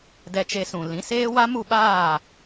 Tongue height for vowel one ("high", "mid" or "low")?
mid